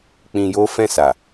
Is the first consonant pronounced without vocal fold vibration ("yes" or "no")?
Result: yes